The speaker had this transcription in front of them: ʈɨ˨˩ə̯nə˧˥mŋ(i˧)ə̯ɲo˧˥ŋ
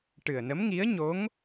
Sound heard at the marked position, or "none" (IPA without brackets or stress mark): i˧˥